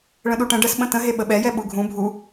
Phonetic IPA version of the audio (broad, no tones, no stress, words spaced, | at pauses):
ɭə̃ɗuʈə̃ ɖəs ɓə̃tə̃ ɦeɓəɓɛjɛ ɓuɡʱũ bʱu